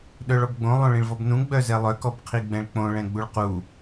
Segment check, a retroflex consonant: present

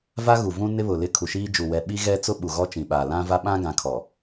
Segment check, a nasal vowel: present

